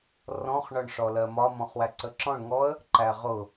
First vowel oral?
no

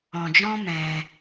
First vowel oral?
no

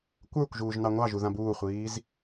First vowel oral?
yes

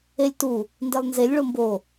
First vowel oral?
yes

